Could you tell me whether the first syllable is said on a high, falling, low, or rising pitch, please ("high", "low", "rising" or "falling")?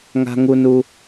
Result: high